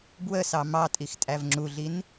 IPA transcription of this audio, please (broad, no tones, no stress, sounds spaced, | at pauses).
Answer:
b w ə s ɑ m ɑ tʼ i x tʼ æ v ŋ͡ǁ u ɮ i n